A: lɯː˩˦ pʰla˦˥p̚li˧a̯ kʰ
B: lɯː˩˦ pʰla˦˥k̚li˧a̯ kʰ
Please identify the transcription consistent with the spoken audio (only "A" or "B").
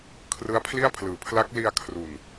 B